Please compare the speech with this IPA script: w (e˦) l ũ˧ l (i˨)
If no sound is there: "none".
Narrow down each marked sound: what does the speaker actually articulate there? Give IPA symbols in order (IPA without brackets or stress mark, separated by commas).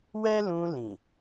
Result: ɛ˦, ĩ˨